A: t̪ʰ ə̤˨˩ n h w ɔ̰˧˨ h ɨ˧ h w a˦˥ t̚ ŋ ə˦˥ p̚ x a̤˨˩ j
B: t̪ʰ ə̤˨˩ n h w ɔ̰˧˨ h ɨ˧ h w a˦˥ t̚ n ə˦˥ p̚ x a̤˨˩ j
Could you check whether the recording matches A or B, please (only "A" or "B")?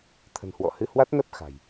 B